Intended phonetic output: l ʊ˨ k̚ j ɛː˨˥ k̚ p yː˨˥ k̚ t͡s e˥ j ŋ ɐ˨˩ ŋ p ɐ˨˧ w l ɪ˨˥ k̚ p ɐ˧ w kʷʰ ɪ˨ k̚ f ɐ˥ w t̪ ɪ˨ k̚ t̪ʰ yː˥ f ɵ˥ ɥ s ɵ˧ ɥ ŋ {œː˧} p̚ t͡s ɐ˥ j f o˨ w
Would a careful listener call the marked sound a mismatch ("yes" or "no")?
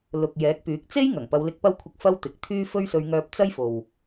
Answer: no